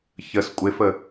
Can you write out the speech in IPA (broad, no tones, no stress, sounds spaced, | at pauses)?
ç ə s kʷʼ ɪ f ə